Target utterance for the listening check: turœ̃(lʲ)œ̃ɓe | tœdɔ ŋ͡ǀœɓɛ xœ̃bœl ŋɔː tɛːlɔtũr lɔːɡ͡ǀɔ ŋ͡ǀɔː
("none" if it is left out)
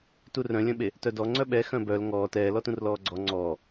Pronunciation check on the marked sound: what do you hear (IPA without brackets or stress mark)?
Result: lʲ